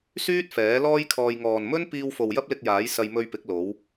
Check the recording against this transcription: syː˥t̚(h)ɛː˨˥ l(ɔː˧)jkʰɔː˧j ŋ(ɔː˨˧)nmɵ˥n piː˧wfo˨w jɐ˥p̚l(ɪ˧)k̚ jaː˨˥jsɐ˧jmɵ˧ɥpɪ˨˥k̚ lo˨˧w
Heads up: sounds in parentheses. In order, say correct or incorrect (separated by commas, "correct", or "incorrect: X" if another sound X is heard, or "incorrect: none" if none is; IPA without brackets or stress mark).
incorrect: f, incorrect: ɔː˥, incorrect: ɔː˨, correct